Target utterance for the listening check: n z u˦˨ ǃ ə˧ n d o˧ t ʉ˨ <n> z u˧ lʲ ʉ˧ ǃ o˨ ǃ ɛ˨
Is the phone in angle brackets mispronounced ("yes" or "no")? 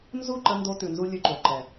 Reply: no